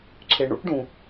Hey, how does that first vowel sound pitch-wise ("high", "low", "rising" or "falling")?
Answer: low